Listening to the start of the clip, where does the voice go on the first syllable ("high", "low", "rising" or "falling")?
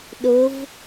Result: rising